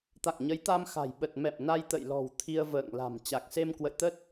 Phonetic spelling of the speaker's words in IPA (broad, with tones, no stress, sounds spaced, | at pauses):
t̪ a̰˧˨ ŋ ɲ ə˨˦ j t̪ a˧ m x a̤˨˩ j ɓ ə˨˩ t̚ m ɛ̰˧˨ m n a˧ j t̪ ə̰˧˨ j l ɔ̤˨˩ w t̪ʰ i˧ ə̯ v ə̰ː˧˨ ŋ l a̤˨˩ m t͡ɕ a˨˩ k̚ s e˧ m k w ə̰˧˨ j t̪ ə˦˥ t̚